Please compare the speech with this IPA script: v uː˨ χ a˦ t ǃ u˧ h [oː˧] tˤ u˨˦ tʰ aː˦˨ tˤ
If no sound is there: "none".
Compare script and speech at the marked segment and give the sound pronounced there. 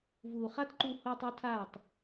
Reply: oː˧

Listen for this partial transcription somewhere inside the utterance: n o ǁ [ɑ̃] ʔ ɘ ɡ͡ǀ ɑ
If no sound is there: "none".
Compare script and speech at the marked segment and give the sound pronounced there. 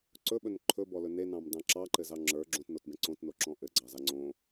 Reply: ɔ̃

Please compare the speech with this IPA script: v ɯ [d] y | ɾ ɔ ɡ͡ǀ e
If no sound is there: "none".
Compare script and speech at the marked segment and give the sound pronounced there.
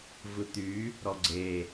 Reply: t̪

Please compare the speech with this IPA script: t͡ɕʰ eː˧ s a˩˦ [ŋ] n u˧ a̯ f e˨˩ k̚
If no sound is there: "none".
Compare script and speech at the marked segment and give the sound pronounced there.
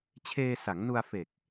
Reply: ŋ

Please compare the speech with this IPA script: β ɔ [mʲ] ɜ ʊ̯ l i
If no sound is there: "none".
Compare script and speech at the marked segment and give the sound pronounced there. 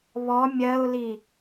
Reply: mʲ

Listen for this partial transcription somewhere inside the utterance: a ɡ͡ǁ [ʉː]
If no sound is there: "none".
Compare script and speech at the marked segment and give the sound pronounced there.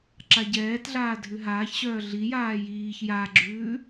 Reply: ʉː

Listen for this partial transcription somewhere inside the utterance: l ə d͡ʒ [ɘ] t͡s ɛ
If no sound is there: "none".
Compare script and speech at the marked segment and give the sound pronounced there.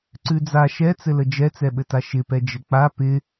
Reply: ɛ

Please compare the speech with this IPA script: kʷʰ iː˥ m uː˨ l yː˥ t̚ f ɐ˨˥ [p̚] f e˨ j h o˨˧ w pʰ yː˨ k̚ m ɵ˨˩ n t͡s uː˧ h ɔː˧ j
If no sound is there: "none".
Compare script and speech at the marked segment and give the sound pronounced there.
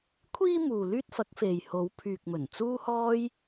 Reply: k̚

